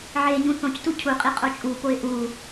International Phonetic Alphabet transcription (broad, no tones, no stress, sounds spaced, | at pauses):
ʕ eː ɲ ũ θ õ c t u cʰ u qʼ i qʼ o t͡ʃʼ u p o ɪ̯ ʔ u